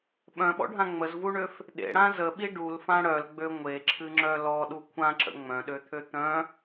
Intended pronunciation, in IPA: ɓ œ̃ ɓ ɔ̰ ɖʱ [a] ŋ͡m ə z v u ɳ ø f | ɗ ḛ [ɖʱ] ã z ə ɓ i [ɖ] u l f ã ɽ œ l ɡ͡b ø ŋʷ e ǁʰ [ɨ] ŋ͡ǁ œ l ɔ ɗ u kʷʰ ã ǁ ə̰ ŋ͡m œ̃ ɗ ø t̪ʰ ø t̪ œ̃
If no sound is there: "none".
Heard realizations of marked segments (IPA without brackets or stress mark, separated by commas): ã, ɽ, ɖ, ɨ